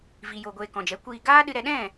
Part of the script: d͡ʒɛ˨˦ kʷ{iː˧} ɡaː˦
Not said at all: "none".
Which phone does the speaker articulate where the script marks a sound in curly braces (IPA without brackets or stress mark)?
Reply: iː˧